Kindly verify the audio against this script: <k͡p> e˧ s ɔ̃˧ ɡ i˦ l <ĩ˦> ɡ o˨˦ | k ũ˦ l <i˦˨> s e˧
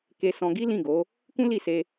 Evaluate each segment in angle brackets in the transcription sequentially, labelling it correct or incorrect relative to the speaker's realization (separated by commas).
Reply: incorrect, incorrect, correct